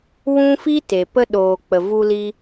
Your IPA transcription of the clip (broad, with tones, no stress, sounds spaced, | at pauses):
w ũ˦ f i˦ t e˨ p ə˧ ɗ oː˨ k͡p ə˨ v u˧ l i˧